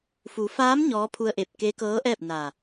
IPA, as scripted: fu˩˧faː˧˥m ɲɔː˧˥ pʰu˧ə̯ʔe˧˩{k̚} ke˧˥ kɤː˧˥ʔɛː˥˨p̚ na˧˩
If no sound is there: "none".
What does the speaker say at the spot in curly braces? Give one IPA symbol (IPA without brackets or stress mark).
p̚